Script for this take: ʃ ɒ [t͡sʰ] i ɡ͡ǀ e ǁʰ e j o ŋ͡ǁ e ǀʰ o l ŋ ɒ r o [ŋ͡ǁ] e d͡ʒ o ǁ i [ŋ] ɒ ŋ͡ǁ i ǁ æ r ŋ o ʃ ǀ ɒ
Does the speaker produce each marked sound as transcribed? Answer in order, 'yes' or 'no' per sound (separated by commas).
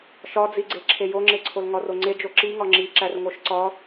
no, no, yes